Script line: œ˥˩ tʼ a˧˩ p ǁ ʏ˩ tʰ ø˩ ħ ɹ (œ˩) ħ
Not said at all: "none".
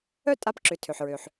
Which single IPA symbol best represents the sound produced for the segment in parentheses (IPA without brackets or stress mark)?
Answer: ø˩